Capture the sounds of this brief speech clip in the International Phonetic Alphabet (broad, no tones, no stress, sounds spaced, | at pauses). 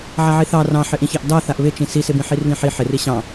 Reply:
ʕ a ʕ i θ ɑ r ɑ̃ ħ ɪ ʔ ĩ ç ɑ ʔ d ɑ θ a ʔ β ɪ t͡ʃ ĩ s i s ɪ b ĩ ħ i r β ĩ ħ i ħ ɪ r i ɕ ɑ̃